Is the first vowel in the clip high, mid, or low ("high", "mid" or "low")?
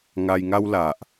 low